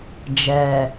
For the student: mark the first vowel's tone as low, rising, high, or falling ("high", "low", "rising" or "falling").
low